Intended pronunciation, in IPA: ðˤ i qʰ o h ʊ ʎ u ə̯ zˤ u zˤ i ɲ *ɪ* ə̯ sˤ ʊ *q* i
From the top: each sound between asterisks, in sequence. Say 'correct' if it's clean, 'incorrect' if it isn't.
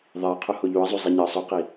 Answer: correct, correct

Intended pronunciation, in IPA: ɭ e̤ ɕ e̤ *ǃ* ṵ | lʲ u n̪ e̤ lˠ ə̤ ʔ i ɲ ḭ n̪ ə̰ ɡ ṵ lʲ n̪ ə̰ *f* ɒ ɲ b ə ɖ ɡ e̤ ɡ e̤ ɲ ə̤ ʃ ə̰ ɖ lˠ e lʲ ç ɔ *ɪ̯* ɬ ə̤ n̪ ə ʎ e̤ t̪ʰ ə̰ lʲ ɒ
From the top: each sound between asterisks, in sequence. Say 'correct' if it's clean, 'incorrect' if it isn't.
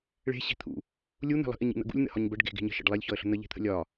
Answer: incorrect: t̪ʰ, incorrect: h, incorrect: ə̯

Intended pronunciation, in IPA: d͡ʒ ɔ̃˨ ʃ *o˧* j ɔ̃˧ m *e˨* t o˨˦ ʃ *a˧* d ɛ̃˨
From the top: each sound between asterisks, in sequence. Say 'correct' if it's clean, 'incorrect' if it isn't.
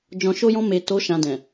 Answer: correct, correct, incorrect: ã˧

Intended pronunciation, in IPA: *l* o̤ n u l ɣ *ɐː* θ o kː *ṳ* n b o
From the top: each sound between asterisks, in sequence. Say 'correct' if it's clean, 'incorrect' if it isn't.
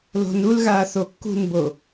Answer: correct, incorrect: aː, correct

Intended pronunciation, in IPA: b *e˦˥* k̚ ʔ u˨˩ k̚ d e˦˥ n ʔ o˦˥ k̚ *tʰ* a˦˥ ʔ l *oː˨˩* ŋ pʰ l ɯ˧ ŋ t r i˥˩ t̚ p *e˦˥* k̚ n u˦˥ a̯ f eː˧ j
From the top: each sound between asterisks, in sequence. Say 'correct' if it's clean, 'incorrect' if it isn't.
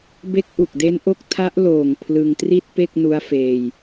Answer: correct, correct, correct, incorrect: e˥˩

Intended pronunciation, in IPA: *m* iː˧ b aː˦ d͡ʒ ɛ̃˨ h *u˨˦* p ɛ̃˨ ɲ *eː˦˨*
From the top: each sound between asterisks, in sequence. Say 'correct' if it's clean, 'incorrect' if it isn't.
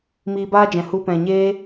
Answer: correct, incorrect: u˧, incorrect: eː˦

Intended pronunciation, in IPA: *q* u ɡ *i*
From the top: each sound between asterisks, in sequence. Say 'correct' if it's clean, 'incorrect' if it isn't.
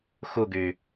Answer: incorrect: x, incorrect: y

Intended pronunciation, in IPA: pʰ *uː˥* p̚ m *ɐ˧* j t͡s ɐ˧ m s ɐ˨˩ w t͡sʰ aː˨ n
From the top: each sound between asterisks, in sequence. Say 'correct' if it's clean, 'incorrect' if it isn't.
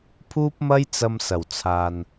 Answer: correct, incorrect: ɐ˥

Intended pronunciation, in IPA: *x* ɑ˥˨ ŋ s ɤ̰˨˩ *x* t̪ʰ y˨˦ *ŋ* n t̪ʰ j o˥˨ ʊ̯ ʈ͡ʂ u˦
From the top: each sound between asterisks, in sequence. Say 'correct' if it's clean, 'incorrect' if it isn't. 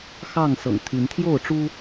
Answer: correct, incorrect: ŋ, incorrect: none

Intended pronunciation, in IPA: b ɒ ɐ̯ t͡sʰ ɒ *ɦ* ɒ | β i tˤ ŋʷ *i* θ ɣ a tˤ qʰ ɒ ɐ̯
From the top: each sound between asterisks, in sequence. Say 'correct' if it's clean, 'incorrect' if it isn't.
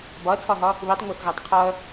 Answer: correct, incorrect: e

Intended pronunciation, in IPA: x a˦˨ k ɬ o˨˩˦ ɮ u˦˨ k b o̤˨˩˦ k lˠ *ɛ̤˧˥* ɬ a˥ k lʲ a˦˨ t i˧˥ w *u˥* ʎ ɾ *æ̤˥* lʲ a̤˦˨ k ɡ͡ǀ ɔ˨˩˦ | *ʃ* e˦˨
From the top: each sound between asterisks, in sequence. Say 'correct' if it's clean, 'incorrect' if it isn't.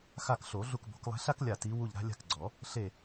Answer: correct, incorrect: u˦˨, incorrect: a̤˥, incorrect: ɬ

